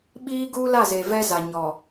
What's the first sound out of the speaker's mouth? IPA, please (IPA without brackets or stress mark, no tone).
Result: ɓ